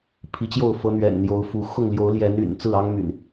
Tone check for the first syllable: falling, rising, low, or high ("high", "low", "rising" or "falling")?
rising